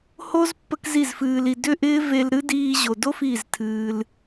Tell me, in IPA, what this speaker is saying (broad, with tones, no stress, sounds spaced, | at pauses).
h o˦ z pː ə˦ k z i˦˨ z f ɨː˧ l i˧ d ʏ˦ ʔ ɪː˦ v e˧ l ɾ ɨ˦ d iː˧ ʑ o˨ d o˦ f i˦˨ z tʰ ɨː˧ l